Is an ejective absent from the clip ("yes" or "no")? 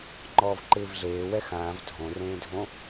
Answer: yes